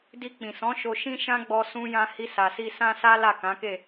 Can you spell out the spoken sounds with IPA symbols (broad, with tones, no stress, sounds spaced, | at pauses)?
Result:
d i˧ k͡p ĩ˨ s ɔ̃˨˦ ʃ o˧ ʃ ĩ˦ ʃ ã˦ ɡ͡b ɔ˧ s ũ˧ j ã˧ h i˧ s a˨ s i˧ s ã˦ s a˦ l a˦˨ k ã˨˦ k e˦˨